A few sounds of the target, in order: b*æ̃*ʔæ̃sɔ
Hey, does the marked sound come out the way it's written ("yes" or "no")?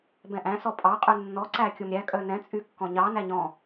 no